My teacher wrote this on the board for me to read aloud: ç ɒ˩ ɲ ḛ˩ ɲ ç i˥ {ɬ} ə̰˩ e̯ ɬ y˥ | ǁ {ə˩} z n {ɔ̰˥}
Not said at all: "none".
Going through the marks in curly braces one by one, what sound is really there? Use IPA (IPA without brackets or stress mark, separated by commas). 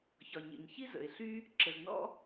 z, ə˩, ɔ̰˥